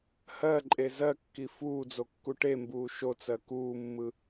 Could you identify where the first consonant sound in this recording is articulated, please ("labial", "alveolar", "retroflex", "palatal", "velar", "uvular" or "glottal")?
glottal